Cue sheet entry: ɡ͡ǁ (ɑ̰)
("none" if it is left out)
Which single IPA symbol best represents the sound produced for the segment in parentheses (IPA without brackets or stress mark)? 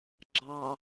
ɑ